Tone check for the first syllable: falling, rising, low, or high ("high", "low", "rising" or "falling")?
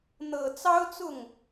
low